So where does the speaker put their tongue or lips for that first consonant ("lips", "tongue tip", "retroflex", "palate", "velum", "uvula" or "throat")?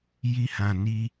palate